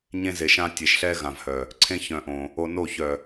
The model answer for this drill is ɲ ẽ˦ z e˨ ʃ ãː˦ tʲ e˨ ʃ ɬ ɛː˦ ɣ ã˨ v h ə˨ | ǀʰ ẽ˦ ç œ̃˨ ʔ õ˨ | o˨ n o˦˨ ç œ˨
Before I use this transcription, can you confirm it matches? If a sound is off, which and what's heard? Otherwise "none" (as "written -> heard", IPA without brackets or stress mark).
ə˨ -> œ˨